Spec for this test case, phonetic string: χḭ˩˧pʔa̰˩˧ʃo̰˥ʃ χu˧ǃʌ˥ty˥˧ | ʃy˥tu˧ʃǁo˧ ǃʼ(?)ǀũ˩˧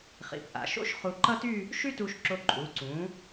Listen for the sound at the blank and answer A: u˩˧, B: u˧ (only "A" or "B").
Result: A